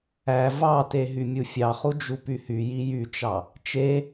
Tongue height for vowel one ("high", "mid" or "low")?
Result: low